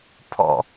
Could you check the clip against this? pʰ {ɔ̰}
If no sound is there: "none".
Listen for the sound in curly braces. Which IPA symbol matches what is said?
ɔ̰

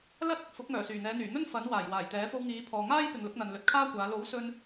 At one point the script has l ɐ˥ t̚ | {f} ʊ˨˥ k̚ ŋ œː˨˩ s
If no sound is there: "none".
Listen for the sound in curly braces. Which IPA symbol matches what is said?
f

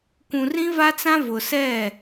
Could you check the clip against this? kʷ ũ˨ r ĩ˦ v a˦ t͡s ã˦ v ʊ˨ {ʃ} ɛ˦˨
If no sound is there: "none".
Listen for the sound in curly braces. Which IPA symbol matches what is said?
s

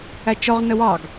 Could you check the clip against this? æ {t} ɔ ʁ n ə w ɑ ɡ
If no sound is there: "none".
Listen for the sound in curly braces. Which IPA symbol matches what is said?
t͡ʃ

